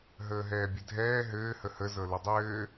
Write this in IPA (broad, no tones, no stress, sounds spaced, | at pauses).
ɦ əː ɦ ɛː bʲ ɘ dʱ ɛː ɦ ɘː h ə h ə z ɤ l ɘ dˤ ɘː